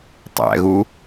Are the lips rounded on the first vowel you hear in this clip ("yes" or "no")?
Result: no